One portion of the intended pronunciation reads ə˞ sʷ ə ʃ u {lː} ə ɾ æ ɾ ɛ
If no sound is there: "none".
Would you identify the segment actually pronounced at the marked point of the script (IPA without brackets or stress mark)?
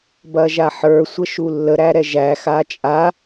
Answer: lː